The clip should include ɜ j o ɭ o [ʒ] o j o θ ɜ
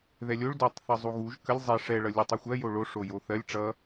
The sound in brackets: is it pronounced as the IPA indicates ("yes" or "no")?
no